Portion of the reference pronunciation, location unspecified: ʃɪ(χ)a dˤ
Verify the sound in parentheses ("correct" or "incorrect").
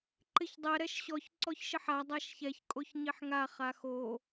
incorrect